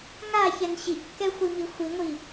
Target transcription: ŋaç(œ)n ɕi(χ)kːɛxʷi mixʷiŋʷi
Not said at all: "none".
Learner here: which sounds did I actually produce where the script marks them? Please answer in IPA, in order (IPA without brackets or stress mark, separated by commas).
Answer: ɛ, ʔ